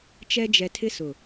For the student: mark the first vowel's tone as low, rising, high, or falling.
high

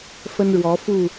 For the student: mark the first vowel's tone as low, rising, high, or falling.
high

